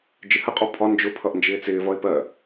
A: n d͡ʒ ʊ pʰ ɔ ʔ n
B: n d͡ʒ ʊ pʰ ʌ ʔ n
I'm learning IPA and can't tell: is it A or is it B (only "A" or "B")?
B